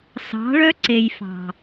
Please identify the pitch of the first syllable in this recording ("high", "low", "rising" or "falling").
rising